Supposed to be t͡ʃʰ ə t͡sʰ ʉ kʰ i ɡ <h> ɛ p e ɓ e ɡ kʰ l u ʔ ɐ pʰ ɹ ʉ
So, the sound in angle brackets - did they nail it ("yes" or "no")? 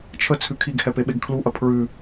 yes